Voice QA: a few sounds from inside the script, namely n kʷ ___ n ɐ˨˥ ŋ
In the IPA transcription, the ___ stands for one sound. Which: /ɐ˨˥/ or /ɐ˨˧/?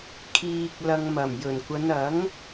ɐ˨˧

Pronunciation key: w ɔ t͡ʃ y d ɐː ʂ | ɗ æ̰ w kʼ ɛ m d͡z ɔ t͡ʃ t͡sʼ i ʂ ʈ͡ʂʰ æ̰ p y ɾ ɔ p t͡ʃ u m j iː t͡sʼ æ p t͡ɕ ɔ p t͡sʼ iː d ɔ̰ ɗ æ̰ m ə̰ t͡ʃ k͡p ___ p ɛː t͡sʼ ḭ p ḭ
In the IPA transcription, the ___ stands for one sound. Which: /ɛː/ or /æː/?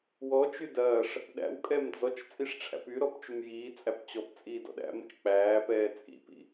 æː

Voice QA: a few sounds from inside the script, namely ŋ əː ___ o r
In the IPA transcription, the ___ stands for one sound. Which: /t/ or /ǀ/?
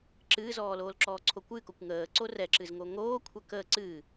ǀ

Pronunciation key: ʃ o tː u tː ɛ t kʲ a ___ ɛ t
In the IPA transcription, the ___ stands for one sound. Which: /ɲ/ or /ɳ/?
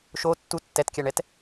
ɳ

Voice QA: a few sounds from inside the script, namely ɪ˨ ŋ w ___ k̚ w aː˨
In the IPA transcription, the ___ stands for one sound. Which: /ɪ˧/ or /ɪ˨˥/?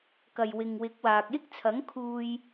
ɪ˨˥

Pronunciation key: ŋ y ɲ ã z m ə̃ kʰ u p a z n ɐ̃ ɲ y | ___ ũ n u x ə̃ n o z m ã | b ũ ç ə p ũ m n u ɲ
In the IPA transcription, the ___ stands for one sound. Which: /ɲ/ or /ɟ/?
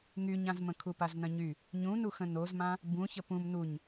ɲ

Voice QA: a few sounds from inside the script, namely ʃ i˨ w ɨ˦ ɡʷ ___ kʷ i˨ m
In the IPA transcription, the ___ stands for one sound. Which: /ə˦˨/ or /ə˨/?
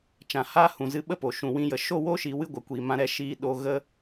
ə˨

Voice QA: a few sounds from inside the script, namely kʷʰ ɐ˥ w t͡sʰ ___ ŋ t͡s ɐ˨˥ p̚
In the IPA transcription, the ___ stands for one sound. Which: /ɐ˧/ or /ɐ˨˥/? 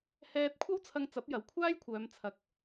ɐ˧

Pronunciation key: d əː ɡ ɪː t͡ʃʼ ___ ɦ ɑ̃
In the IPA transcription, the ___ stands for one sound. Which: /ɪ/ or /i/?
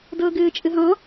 ɪ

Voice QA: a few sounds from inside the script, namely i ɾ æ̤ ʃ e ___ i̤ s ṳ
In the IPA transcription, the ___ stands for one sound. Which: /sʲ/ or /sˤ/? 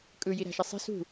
sˤ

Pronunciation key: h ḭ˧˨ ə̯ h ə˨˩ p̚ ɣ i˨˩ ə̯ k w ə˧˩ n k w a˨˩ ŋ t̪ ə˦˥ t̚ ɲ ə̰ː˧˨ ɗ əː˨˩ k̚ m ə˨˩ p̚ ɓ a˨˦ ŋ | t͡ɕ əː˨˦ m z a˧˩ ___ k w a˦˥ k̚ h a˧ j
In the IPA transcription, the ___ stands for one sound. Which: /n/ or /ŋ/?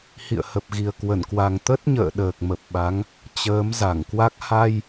ŋ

